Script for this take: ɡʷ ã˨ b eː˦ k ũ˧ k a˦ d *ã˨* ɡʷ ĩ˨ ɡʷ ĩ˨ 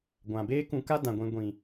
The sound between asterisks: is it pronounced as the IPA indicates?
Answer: yes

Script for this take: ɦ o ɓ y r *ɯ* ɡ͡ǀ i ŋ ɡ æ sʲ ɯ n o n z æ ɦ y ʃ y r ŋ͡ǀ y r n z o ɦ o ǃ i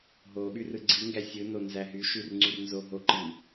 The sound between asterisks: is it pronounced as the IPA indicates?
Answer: yes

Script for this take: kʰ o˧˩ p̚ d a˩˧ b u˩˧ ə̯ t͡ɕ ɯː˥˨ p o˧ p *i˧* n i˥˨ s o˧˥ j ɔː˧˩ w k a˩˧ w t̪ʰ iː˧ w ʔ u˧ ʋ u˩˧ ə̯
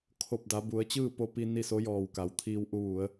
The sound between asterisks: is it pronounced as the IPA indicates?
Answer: yes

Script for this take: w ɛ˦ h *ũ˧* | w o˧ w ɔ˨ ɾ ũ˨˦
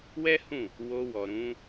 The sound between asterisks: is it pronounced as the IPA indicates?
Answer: no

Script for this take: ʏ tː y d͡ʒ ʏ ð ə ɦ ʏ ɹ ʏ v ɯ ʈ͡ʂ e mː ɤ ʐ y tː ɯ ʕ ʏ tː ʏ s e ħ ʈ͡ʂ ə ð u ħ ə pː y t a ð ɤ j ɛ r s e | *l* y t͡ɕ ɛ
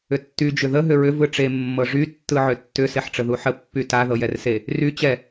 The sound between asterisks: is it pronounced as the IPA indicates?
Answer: no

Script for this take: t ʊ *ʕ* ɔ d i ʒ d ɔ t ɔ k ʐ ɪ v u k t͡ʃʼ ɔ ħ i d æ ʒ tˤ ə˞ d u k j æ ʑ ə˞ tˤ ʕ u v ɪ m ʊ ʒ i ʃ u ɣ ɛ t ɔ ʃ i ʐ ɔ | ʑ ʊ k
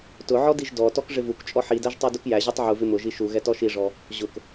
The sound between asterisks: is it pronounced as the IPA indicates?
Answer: yes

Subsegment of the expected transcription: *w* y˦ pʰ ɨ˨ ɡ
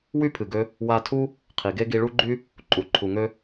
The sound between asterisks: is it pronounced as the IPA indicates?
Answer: yes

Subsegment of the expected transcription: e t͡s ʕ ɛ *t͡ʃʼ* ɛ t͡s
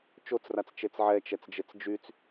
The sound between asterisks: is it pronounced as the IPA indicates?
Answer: no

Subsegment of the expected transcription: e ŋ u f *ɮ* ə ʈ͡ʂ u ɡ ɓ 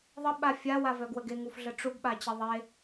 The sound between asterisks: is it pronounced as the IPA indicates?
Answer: yes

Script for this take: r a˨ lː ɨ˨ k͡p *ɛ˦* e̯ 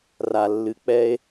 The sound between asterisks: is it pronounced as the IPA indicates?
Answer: yes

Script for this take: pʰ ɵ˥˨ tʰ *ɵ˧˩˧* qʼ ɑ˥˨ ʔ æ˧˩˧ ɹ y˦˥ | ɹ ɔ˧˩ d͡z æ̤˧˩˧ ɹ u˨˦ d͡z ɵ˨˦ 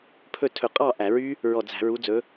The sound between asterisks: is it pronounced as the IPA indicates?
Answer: yes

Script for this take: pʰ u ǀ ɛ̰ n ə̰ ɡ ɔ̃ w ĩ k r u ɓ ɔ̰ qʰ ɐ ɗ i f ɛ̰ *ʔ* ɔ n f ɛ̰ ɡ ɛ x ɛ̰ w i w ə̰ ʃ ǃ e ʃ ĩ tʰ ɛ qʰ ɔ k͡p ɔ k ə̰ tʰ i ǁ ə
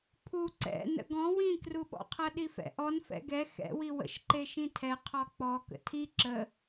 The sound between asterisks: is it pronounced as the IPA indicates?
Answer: yes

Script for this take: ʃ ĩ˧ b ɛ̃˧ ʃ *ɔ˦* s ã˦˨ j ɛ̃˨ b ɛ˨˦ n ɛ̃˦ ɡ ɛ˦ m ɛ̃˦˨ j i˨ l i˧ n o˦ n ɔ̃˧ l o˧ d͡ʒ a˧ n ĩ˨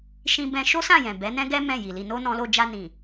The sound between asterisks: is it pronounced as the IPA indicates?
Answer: no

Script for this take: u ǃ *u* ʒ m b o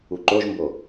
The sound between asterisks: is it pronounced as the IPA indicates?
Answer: no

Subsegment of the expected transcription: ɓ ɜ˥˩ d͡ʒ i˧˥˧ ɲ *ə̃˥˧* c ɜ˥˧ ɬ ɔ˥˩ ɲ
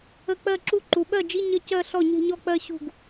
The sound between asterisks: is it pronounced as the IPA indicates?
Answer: no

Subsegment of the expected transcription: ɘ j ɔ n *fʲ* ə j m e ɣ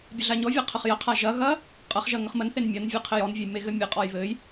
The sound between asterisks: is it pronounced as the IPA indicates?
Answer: no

